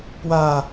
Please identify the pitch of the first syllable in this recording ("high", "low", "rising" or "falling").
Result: falling